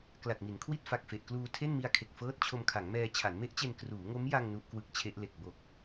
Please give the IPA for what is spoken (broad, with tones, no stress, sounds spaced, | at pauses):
k l a˨˩ t̚ m i˩˦ n kʰ w i˥˩ t̚ f a˨˩ k̚ f e˨˩ ʔ k l uː˧ tʰ e˥˩ n m i˧ a̯ kʰ e˨˩ k̚ f ɤː˥˩ t̚ t͡ɕʰ o˧ m kʰ a˩˦ ŋ m ɛː˧ t͡ɕʰ a˩˦ n m e˦˥ ʔ t͡ɕ e˧ n k r uː˩˦ ŋ o˦˥ m j a˧ ŋ n u˦˥ ʔ k w ɯ˦˥ k̚ t͡ɕʰ e˦˥ ʔ l e˨˩ k̚ b o˨˩ k̚